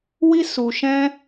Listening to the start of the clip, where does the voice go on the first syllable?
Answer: high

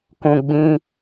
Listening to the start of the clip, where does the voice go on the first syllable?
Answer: low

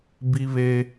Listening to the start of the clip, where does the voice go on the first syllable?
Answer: high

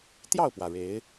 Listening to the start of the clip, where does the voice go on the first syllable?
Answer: falling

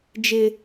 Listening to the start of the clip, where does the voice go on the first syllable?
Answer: high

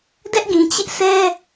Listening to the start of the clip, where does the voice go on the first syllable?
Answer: high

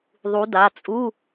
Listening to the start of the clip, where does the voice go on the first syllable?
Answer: rising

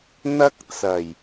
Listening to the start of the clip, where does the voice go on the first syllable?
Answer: high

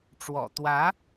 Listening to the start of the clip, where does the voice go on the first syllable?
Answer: low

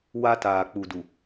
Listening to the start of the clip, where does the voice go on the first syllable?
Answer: high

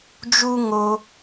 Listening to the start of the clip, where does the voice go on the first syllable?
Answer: high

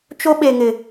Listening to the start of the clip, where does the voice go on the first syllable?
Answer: high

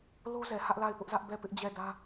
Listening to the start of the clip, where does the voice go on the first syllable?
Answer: high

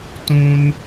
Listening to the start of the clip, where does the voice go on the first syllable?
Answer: high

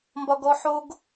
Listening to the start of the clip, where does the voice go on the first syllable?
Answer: high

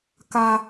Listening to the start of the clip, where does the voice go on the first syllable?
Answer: high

